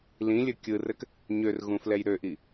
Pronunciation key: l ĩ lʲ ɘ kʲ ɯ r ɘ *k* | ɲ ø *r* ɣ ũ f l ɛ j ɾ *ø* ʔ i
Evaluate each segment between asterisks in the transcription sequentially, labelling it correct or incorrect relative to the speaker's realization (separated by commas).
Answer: correct, correct, correct